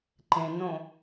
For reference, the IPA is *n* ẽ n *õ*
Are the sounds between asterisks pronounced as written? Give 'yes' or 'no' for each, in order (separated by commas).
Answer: no, yes